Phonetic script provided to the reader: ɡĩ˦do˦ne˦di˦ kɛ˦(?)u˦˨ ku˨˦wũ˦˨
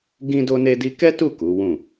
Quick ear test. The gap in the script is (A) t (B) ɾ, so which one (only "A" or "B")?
A